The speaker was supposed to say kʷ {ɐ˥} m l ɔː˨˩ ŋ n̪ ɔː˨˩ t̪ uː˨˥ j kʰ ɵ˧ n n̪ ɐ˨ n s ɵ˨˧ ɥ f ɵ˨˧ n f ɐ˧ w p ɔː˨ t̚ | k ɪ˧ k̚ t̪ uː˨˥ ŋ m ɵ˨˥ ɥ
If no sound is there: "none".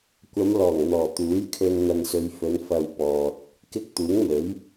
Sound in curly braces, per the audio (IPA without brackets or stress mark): ɐ˨˧